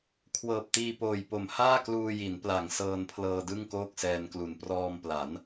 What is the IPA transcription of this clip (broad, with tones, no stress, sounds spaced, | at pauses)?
kʰ w ɤː˨˩ p̚ t iː˧ p oː˨˩ j p o˨˩ m h aː˥˩ k l uː˧ j i˩˦ n p l a˨˩ ŋ s ɤː˧ n pʰ l ɤː˧ d ɯ˥˩ ŋ k oː˥˩ k̚ s ɛː˧ n k l u˨˩ n p r ɔː˧ m p l a˩˦ n